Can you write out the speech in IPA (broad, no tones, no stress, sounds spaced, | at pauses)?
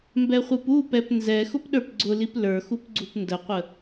m b ɛ χʷ ɯ p u p ɛ p n z ɛ x ʊ p ɗ ə˞ p ɡ͡ǀ ʊ l i p l ə˞ x u p ɡ͡ǀ u p n d ə qʷ ə